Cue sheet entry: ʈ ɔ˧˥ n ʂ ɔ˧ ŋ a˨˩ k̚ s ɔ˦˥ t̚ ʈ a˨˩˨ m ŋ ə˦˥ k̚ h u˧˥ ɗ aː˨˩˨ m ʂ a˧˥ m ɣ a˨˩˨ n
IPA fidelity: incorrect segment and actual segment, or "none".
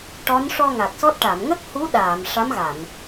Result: none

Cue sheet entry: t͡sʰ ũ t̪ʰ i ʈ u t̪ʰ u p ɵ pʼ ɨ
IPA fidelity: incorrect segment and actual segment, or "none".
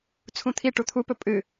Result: none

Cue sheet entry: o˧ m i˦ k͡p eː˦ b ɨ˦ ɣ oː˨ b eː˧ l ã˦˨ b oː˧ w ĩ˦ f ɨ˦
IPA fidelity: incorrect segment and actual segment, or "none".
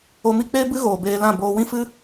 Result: none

